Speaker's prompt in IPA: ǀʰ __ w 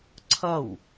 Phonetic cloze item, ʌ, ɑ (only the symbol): ʌ